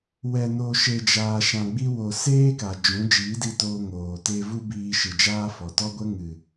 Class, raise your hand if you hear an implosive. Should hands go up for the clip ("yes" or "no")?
no